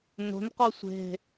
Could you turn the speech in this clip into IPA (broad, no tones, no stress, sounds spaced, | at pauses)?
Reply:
n o̤ n q ɔ sʷ e̤